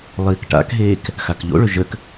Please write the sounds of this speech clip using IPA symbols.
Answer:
lˠ iː k ʈ a̰ k ɦ eː k | x a k ʎ o̰ ɭ ɵ ʒ ə k

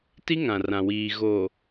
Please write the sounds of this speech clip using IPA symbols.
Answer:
t i˦ ŋ ã˨ r ã˨ w iː˨ ɣ o˨

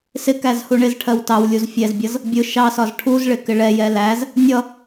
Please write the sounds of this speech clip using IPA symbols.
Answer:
s ɪ k æ z h u ɳ ɪ z ʈʰ ɜ w t ɑ w lʲ u z fʲ ɛ z bʲ ʌ z | bʲ ʊ ʃ ɑ s ɒ z ʈʰ u z ɭ ɪ k ɪ ɭ ɛ j ɛ l æ z | nʲ ʌ

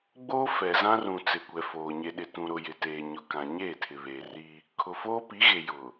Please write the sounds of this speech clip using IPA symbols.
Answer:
ɡ͡b oː˦ f ɛ˨ z ã˦ r ũ˨ t͡s ɪ˨ kʷ ɛ˨ f oː˨ ɲ e˨ ɗ ɪ˨ t ũ˨ ɾ ʊ˨ j ɪ˨ t eː˨ ɲ ʊ˨ k ã˨ ɲ eː˦˨ tʰ ɪ˨ β eː˨ r i˦ | kʰ ʊ˨ f oː˦ p i˨˦ ɣ e˨ j ʊ˨

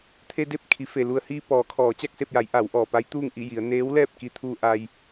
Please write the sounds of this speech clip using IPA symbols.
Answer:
t̪ʰ e˧ d e˥˨ p̚ kʰ i˩˧ f e˩ l u˩ ə̯ h iː˧ p ɔː˩˧ kʰ ɔː˩˧ t͡ɕ a˥˨ k̚ s e˥˨ p̚ j a˩˧ j ʔ a˩˧ w ʔ ɔː˩ p a˧˥ j t̪ uː˥˨ ŋ ʔ i˥˨ j i˩˧ ə̯ n eː˧˥ w l ɛː˥˨ p̚ k i˧ t̪ʰ uː˧ ʔ a˧ j

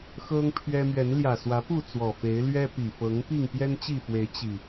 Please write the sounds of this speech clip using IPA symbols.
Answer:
x ɤ˦ ŋ pʰ ɥ ɛ˦ m ɥ ɛ˨˦ n l j ä˨˩ s w ä˨˦ p u˥˨ t͡s w ɔ˨˩ f e˨˦ ɪ̯ l ɥ ɛ˦ p i˨˩ f ɤ˨˦ ŋ p i˥˨ ŋ p j ɛ˦ n t͡ɕ i˥˨ f w e˨˦ ɪ̯ t͡ɕ i˨˩

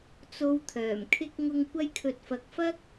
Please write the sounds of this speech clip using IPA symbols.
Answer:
t͡s o˧ w t̪ʰ œː˨˩ m kʰ ɪ˥ k̚ ŋ ʊ˧ ŋ kʷ ɐ˧ j kʰ ɵ˨ t̚ f ɐ˨ k̚ f ɐ˥ k̚

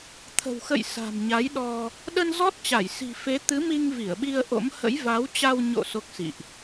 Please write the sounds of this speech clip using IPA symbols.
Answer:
t̪ʰ ə̤˨˩ w x ə̰˧˨ j s a̤˨˩ m ɲ a˨˦ j ɗ ɔ˧ | ɗ ə˧ n z ɔ˦˥ t̚ t͡ɕ a˧˩ j s i̤˨˩ f e˨˦ t̪ ɨ˨˦ m i˧ ŋ v i˧˩ ə̯ ɓ i˧ ə̯ ʔ o̰˧˥ m h ə̰˧˥ j v a˨˦ w t͡ɕ a˧ w ɲ o̰˧˨ s o˦˥ k̚ s ḭ˧˨ ʔ

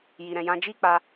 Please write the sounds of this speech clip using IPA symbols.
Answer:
j i˧ ɾ ɛ̃˧ j ã˦ d͡ʒ i˦ k͡p a˧

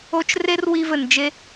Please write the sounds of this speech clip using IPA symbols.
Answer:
o˦ t͡ʃ r e˦ r w i˧ v ɘ˨ n d͡ʒ e˧

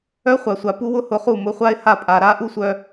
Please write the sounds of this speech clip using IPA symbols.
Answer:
œ˦ χʷ a˨ sʷ a˨ p u˦ w ʊ˦ h ʊ˧ χ u˦˨ m ʊ˧ χʷ a˦ ɪ̯ h a˦˨ pʼ a˨ ɾ a˦ ʔ u˦ sʷ œ˧

